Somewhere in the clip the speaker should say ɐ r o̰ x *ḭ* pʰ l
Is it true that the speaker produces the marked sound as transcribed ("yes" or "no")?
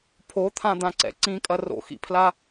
yes